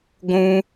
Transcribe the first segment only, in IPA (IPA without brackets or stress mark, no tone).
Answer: ɡʷ